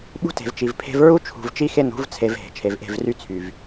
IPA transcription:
ɓ ṳ˦ t e̤˨ v t͡ʃ i˨ v pʰ e̤˦ v ɹ u˦ t͡ʃʰ ṳ˨ v t͡ʃ i˦ x e˦ n ṳ˨˦ v t͡sʰ e˨ v ɦ e̤˨ t͡ʃʰ e˨ v ʔ e̤˦˨ v r y˦ t͡sʰ y˨ v

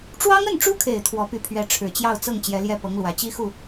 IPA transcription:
ʈ͡ʂ w ɑ˥ ŋ ə˥˩ n ʈ͡ʂ u˥ kʰ e˨˩ ɪ̯ t̪ʰ w ɔ˧˥ p y˧˥ pʰ ɥ ɛ˧˥ ʈ͡ʂʰ ɻ̩˨˩ t͡ɕ j ɑ˥˧ ʊ̯ t͡s ɤ˥˩ ŋ t͡ɕ j ɛ˧˥ l j ɛ˥˩ p ɤ˧˥ ŋ l w ä˨˩ t͡ɕ i˥ x u˥˩

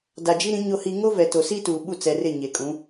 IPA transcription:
d a˨ d͡ʒ i˦ ɾ ĩ˨˦ ɲ o˨ h i˨ ŋ o˦ v ɛ˨ t o˨ s i˦ t uː˨ ɓ u˦˨ t͡s ɛ˨ r ɪ˦˨ ɲ e˨ kʼ ũ˨˦

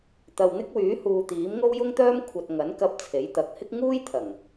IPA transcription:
t̪ ɐ˨ w n̪ ɪ˥ k̚ w yː˨˥ h uː˨ t̪ iː˨˥ m ŋ o˥ w j ʊ˥ ŋ t̪ œː˥ m kʷʰ ɐ˨ t̚ ŋ ɐ˨˥ n k ɐ˧ p̚ t͡sʰ e˨˥ j t̪ ɐ˨˥ k̚ h ɪ˥ k̚ ŋ uː˥ j t̪ʰ ɐ˨˩ ŋ

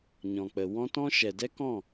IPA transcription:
ɲ ɔ̃˨ k͡p ə˨ w ɔ̃˦ t ɔ̃˦ ʃ ɛ˨ d ɛ˦ k ɔ̃˦˨

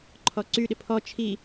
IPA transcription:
ǃʰ ɔ ǀ y ɗ ɪ pʰ ɔ t͡ʃʰ i

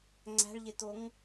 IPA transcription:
ŋ͡ǀ æ̤ ɭ ʎ e t̪ o ŋ

